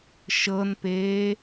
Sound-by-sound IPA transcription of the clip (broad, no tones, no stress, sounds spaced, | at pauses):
ʃ ɤ n p eː